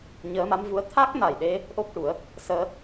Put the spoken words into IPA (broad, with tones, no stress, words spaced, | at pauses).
ɲəː˧˥ma˧˥mvu˧˥ə̯ t̪ʰa˦˥k̚na˨˩jɗe˧ | ʔo˦˥k̚ʈu˨˩˦ə̯ | səː˧